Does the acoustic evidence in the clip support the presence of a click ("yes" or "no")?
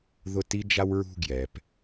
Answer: no